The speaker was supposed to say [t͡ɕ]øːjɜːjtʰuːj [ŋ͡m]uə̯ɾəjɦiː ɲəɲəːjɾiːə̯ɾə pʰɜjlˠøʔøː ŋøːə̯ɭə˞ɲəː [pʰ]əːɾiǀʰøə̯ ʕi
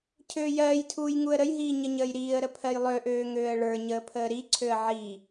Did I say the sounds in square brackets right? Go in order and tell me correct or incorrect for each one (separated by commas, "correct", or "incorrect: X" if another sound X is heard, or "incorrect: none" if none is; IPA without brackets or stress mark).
incorrect: cʰ, incorrect: ŋ, correct